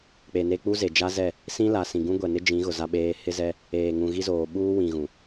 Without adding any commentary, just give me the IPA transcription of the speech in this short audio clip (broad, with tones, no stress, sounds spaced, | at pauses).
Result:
k͡p e˨ n e˦ k͡p u˦ z e˨ d͡ʒ a˦ z ɛ˦˨ | s ĩ˦ l a˨ s ĩ˨ ɡ ũ˦ ɡʷ ɛ˨ n ɪ˦ d͡ʒ ĩ˨˦ ɣ ʊ˨ z a˦ ɓ eː˦ h ɪ˦ z ɛ˦ | eː˨ ŋ ũ˨ ɣ i˦ z oː˨ ɓ uː˦ w ĩ˨ ɣ ũ˨